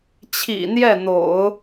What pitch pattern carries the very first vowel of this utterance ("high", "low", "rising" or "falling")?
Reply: low